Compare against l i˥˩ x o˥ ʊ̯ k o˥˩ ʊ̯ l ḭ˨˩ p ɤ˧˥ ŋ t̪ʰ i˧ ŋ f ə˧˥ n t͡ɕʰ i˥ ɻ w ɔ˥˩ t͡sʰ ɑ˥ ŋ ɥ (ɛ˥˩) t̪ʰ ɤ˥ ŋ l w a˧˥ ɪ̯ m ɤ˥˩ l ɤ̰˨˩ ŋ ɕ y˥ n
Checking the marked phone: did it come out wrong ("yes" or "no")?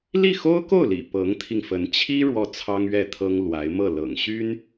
no